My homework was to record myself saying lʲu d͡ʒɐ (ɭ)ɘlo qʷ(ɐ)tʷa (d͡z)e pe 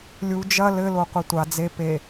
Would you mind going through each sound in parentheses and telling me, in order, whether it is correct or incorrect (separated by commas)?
incorrect, correct, correct